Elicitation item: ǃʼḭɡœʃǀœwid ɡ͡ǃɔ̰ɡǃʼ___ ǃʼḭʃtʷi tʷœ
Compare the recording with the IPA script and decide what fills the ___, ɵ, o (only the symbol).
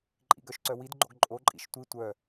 o